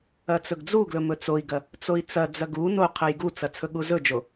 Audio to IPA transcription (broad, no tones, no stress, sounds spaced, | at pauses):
ɐ t͡s ɵ ɡ d͡z u ɡ l ɵ m ɵ t͡s o i̯ ɡ ɐ | t͡s o i̯ t͡s ɐ d͡z ɐ ɡ u n o qʰ ɐ j ɡ u t͡s ɐ t͡sʰ ɵ ɠ u z ɵ d͡ʒ o